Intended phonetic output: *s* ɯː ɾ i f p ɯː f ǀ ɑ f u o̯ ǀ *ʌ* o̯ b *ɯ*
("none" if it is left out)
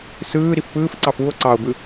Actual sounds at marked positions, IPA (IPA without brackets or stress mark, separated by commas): s, ɑ, ɯ